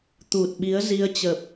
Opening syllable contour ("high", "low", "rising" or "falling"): low